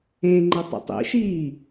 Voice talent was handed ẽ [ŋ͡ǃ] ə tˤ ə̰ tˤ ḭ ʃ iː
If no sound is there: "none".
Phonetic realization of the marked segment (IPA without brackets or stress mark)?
ŋ͡ǃ